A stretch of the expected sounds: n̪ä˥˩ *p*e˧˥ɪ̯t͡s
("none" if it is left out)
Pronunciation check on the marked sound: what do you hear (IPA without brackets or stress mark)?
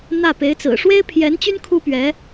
p